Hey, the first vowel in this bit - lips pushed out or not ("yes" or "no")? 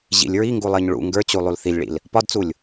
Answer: no